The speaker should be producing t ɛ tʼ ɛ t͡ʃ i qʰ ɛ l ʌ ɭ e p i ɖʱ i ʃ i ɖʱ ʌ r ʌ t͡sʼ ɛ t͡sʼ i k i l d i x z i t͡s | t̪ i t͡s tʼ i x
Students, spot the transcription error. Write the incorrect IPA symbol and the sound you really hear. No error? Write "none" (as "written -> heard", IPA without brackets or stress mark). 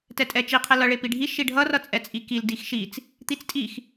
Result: z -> ʃ